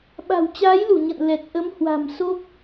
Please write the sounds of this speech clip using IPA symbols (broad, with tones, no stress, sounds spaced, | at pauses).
ɓ a̤˨˩ w t͡ɕ aː˨˦ j l u˧˩ ɲ ə̰˧˨ n l ɛ˨˩ t̚ ʔ ə˨˦ m h w a̤˨˩ m s o˦˥ k̚